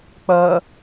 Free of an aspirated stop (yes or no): yes